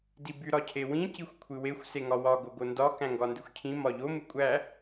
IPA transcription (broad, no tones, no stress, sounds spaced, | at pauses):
d i b y ɾ ɒ cʰ e w ĩ c i xʷ kʷʰ ɨ w e xʷ s e ŋ ɒ w ɒ ɡ o ɡ o n d ɒ k æ̃ ŋ ɡ ɒ n d ɨ xʷ cʰ ĩ m ɒ ʎ o m ɨ kʷʼ æ